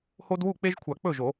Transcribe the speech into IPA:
h o˦ d w u˥˩ k͡p e˦ ʒ kʷʰ a˨˩˦ k͡p ɵ˥˩ ʒ o˨˩˦

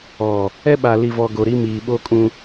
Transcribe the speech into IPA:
ɔ˨ | ɛ˦ ɓ a˨ l i˨ v ɔ˨ ɡ o˨ ɾ i˦ m iː˨ ɓ o˦ kʼ ũ˦

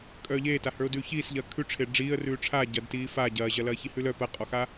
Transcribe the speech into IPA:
kʼ œː ʎ eː t a h ə˞ ʊ̯ d ʉː ç iː s ʎ ɐː kʰ ʉ ʈ͡ʂʰ e ɖ͡ʐ iː ə̯ r ʉː ʈ͡ʂʰ aː ɟ ɐ d t iː f a ɟ ɐː ʑ ɐ l ɐː ç i h ʉ l œ p ɐ qʼ ɔ x aː

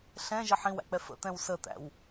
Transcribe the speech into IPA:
ɬ ɛ̃ ʒ ə ħ ĩ w æ̰ k͡p ɛ f ə̰ t̪ ɛ̃ w s ə t̪ æ̰ w

